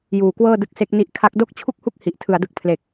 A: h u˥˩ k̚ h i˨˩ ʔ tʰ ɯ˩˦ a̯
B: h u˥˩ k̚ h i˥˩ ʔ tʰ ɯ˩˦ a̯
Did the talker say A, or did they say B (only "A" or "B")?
A